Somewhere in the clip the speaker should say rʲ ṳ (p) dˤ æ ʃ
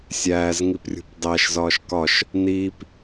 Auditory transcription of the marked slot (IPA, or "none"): p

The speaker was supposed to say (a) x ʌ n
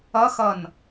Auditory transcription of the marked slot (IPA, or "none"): ʌ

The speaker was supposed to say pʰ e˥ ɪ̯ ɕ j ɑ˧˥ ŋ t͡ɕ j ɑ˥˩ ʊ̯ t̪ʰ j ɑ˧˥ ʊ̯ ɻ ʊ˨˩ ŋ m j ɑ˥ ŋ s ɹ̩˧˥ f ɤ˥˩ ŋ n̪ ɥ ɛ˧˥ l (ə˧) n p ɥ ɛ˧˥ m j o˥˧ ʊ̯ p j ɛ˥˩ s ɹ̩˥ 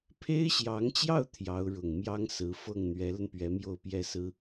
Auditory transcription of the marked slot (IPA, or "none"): ə˧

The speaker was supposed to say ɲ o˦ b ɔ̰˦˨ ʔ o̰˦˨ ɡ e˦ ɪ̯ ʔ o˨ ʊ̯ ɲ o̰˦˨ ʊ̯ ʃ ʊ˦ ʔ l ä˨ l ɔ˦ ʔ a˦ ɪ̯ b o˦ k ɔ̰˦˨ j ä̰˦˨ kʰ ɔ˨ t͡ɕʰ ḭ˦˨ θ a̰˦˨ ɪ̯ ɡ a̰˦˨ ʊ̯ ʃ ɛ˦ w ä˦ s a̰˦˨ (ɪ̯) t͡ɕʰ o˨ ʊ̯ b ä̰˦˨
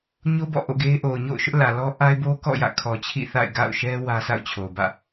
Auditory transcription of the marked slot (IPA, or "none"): ʊ̯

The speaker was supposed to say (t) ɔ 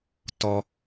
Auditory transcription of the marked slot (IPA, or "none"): t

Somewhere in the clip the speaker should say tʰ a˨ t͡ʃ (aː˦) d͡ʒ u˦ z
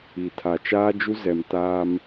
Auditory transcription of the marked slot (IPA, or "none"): aː˦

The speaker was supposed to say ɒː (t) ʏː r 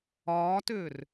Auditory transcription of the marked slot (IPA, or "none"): t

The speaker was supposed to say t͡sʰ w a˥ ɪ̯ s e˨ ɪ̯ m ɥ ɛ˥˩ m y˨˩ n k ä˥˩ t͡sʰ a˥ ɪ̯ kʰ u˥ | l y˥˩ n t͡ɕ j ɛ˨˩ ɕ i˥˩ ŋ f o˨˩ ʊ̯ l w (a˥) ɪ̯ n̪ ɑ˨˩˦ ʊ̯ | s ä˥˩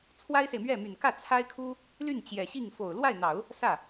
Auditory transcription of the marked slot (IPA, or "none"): a˥˩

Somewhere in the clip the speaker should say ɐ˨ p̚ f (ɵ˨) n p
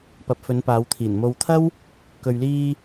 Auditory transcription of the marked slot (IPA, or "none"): ɵ˨˧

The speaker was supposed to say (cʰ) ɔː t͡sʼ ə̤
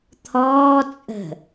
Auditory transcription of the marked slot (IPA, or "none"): t̪ʰ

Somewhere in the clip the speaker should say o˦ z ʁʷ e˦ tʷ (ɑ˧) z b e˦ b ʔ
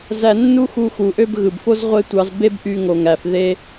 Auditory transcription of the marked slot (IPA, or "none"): ɑ˧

